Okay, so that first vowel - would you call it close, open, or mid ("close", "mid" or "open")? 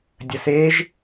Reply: mid